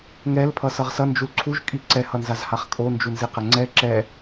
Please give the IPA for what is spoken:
ŋɛl pʰʌsʌʁsʌ nd͡ʒulǀʰuʒ kʼiǀɛ hʌnzazhaχkʼo nd͡ʒunziqɛŋ͡ǀɛ ǁɛ

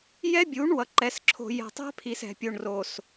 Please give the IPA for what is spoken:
jɛ˦bʲu˨˦ɳwʌ˨ ǃɛ˨sǁʰo̤˨jɛ̤˨ tˤɛ̤˦pʰi˨s ɛ̤˨pʲo˨ɳro˨s

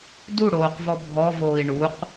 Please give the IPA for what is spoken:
duɽoːqvɔ bʱɔvoːi̯ ɳuq

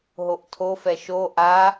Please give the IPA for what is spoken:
ɦoʔtʰofɛ ʃo ʔa

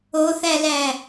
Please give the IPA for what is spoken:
oθælæ

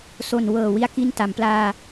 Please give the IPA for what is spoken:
so˨˩nwɤː˨˩ wi˥˩a̯ki˥˩n ta˩˦mplaː˧

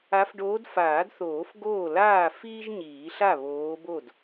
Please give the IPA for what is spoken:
a˨˦fɖoː˨˦d faː˨˩˦dθoː˨˩˦f ɡoː˥˩ laː˥˩ fiː˥ʒɲiː˨˩˦ɬa˥˩ βoː˨˦bo˥˩d

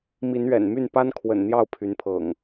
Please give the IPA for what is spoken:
mi˨˦nɥɛ̰˨˩nmy˥˨n pa˦nkʰwə̰˨˩n n̪jɑ˥˨ʊ̯pʰy˨˦npʰɤ̰˨˩ŋ

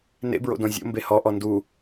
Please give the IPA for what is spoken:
nḛbɹo̰ dõzʲo̰ mbehɔ ʔɔndu

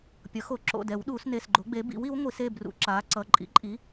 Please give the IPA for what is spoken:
pʲʌ˩˥xo˨˩˦ǁo̰˩˧˩ dɛ˨˩˦w ɗuː˨˩˦sne˩˧˩sɡ͡ǃo˩˥ɡ͡be˩˥ bḭ˩˥wi˩˥w ŋʷi˨˩˦se˩˧˩brṵ˨˩˦ ǁaː˩˥ǀʌ˩˧˩ ǃʼḭ˩˥ǃʼi˩˥

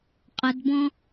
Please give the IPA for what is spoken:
qʼədbɔ̃

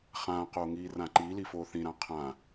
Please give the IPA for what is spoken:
χãːqoː ŋiːrãǃili foːθĩɾã qʰã

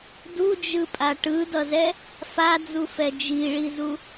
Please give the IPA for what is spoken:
dud͡ʒɯpʼa ʈɯdʌzɛ | fad͡zufɛ d͡ʒiɭizu

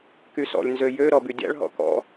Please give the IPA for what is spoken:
kysɔ̰lʲ nzøjø ɾɔbydʲa̰ɭ ɦɔ̰kɔ̰

